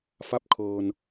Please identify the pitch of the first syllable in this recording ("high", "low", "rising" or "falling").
rising